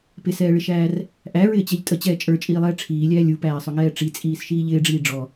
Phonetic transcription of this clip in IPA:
pɪsɛːɭɪʃæːr | ʔæɹɪːt͡ɕɛʎ tʼət͡ɕɛː t͡ʃʼə˞t͡ʃʼiːlˠɛː ʈ͡ʂʰiːlʲæː lʲupæːsˤʊŋɛː ʈ͡ʂit͡sʼiːsʃiː ʎɪːɖ͡ʐiː ɖ͡ʐɔ

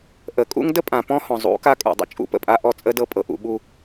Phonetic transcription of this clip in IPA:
ʔə˨˦kʼṵ˦ŋ də˦pʼã˨ pɔ̃˦hɔ̃˨ zˤṵ˨˦ka˦ kʼṵ˨dˤə̰˨ t͡ʃʼṵ˦pə̰˨ pʼa˦ ʔɔ˦t͡sʼə˦dɤ˦ pʼɤ˨ʔṵ˨ ɓu˨

